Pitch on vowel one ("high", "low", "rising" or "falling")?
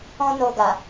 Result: high